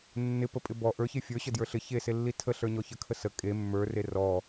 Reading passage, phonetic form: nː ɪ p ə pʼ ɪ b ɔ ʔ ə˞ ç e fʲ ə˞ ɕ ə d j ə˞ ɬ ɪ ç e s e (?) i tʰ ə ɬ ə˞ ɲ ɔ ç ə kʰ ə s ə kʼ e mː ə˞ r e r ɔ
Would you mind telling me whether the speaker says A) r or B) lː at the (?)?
B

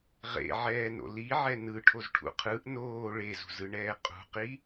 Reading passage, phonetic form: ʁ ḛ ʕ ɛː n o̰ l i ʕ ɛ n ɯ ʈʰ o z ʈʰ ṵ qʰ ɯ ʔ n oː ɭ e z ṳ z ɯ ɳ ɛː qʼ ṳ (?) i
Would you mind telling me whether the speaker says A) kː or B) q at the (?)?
B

